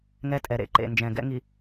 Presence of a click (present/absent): present